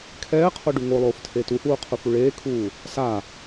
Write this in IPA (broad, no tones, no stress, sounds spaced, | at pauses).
kʰ ɛː qʰ o ɖ u ŋ o lˠ oː f tʰ eː t u h uː qʰ u f u ɭ eː kʰ uː | s a